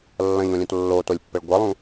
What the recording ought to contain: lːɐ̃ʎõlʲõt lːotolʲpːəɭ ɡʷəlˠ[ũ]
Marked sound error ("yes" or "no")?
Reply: no